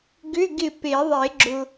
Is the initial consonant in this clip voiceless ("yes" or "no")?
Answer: no